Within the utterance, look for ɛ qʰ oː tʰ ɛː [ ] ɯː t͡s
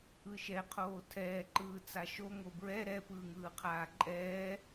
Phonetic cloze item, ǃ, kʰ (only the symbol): ǃ